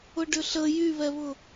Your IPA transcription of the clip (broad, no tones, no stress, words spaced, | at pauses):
ʊɖʏɬə jyβɛβʊ